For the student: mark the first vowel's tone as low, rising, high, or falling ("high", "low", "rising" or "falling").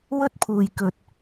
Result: high